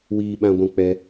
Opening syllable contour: high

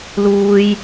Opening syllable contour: high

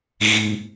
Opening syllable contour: high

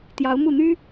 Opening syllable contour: rising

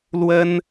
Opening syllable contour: high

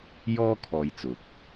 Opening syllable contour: high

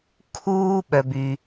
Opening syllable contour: high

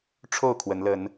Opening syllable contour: falling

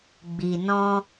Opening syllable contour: low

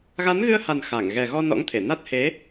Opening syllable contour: rising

